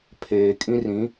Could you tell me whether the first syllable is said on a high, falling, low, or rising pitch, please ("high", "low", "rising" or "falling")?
low